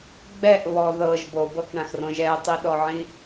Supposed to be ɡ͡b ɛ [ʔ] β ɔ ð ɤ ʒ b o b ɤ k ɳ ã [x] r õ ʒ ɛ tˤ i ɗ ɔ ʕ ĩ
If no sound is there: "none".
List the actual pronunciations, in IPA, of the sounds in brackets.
ʔ, x

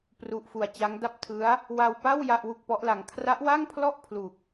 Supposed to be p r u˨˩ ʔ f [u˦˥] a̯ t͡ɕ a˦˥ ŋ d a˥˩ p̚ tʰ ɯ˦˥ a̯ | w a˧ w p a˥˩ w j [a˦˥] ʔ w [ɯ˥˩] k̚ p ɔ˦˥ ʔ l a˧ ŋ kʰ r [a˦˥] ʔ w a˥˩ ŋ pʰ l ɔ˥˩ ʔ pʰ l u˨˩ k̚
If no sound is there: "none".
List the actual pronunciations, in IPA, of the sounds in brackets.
u˨˩, a˥˩, u˥˩, a˦˥

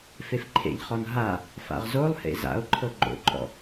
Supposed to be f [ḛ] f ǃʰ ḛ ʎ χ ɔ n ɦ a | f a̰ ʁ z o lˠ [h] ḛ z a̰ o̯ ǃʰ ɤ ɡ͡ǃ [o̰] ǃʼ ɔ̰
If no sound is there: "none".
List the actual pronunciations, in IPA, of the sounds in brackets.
e, h, o̰

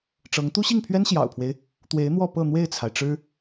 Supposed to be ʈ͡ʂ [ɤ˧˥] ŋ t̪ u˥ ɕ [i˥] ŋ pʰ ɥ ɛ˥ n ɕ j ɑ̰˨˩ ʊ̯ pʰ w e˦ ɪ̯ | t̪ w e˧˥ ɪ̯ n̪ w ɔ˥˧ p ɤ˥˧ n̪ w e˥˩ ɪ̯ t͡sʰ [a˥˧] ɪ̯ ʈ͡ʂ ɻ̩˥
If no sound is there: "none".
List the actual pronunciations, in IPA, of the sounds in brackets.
ɤ˧˥, i˥˩, a˩

